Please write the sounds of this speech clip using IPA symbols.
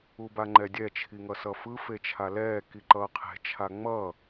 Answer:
u b a ŋ͡ǃ ɛ dʲ ɛ t͡ʃʰ i ŋ ʌ s ʌ f ɯ f e t͡ʃʰ a l ɛː k i ǃ ʌː qʰ e̤ t͡ʃʰ a ŋ͡m ʌ

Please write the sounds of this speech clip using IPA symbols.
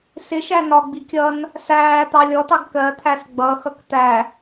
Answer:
s ɪ ʃ æ n ɒ ɡ͡b i kʲ ʌ n | s æː t̪ ɑ lʲ ɔ t ɑ ɡ k ɜ t̪ʰ æ s ɡ͡b ʌ x ʌ k t̪ æ

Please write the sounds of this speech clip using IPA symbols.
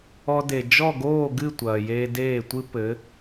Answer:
ɔ˧ d e˩ d͡ʒ ɔ˥˩ ɡ oː˥˩ ɡ ɨ˥˩ tʷ ɐː˩ j eː˧ d eː˥˩ tʷ ɨ˥ p ɘ˩˥

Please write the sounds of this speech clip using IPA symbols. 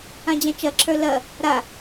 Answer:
ã d͡ʑ ã t͡ʃ ɐ ǁʰ ə˞ l ɐ | ɾ a

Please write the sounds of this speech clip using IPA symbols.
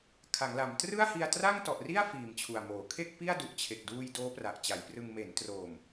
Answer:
kʰ a˩˦ ŋ l a˩˦ m t r ɯ˥˩ a̯ h i˧ a̯ t r a˥˩ ŋ t ɔ˨˩ ʔ r i˥˩ a̯ f iː˨˩ m t͡ɕʰ u˨˩ a̯ m oː˩˦ kʰ e˥˩ k̚ p i˥˩ a̯ d u˨˩ ʔ t͡ɕʰ e˨˩ k̚ d uː˧ j d oː˦˥ p r a˨˩ ʔ t͡ɕ a˩˦ j p r ɯ˧ ŋ m e˩˦ n t r oː˨˩ m

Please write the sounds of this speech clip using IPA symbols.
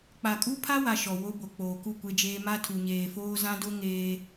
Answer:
k͡p a˨ kʼ u˦ pʰ a˦ w a˨ ʃ ɔ˨ w o˦ b o˨ k͡p oː˨ k u˦˨ kʷ e˦ d͡ʒ eː˦ m a˦ tʰ u˨ ɲ eː˨ f oː˦ z ã˦ d o˦ ŋ eː˦

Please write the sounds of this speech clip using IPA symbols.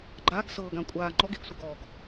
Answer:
ɡ͡ǃ a ɡ s ɤː ɡ ã kʷʼ aː ŋ͡ǃ ɔ ɡ e ɡ sʷ ʌ ɡ ɔː ɡ

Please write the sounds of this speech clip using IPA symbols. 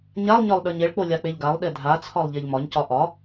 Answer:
ɲ a lˠ ɲ ɒ lˠ ɗ ə˞ ɲ e ɭ k͡p o lʲ a k͡p e ʎ ɡ a lˠ ɗ e dʱ a t͡sʰ ɒ lˠ ʎ e ʎ m ɒ ɲ c ɒ ʔ ɒ

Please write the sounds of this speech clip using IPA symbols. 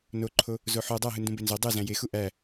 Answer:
n o ǃʰ o | z o ħ o dˤ æ ɦ ɯ n d ũ b e n z o dˤ ɯ z æ̃ j e x u ʔ æ

